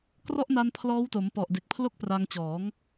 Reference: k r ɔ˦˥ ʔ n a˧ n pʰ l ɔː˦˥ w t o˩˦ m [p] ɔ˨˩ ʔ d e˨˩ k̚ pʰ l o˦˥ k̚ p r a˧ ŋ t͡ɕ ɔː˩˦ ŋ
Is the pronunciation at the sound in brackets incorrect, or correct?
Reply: correct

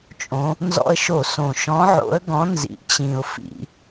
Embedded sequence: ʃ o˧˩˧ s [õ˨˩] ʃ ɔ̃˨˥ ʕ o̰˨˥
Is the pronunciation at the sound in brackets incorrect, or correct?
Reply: correct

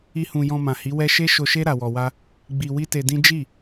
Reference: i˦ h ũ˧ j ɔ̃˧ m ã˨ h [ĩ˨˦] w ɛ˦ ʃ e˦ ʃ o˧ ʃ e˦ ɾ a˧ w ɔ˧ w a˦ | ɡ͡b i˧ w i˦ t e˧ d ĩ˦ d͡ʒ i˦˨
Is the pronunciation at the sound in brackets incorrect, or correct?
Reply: incorrect: i˨˦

